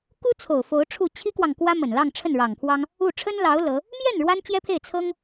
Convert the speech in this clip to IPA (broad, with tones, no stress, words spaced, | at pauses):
ku˥t͡sʰo˨˩ʊ̯ fo˧˥ʊ̯ʈ͡ʂʰu˥˩ t͡ɕʰi˥kwɑ˨ŋ kwä˥mə˨˩nlɑ˥˧ŋ ʈ͡ʂʰə˥˩nɻɑ˨˩ŋpʰwɑ˥ŋ | u˥˩ ʈ͡ʂʰə˥nlɑ˧˥ʊ̯ lɤ˧˥ | mjɛ˥˩n ɻwa˥nt͡ɕjɛ˥pʰe˥˩ɪ̯ t͡sʰɤ˥ŋ